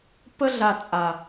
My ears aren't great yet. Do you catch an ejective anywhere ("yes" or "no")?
yes